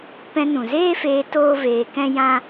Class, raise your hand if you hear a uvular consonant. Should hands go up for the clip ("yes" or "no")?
no